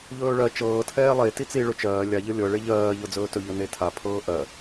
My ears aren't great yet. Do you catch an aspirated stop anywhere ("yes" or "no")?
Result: yes